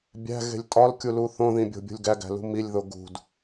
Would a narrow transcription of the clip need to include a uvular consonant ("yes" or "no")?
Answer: no